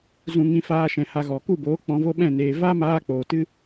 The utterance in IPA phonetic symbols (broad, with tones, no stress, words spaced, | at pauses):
zũ˧ŋĩ˧faː˧ʃɛ̃˨ ha˧ɣɔ˨ ku˦˨boː˨˦ k͡pɔ̃˧vo˦ɓɛ̃˦˨neː˨ va˦ maː˦k͡poː˨ tɨ˦